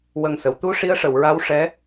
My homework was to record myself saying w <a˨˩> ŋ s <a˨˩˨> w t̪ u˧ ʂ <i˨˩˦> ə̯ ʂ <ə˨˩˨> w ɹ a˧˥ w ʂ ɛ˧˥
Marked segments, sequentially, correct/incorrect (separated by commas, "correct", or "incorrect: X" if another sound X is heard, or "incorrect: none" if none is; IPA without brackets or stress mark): incorrect: ə˨˩, incorrect: ə˨˩˨, incorrect: i˧˥, correct